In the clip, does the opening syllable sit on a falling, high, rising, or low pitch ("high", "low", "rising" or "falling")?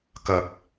low